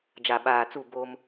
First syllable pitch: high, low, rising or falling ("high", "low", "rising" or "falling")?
low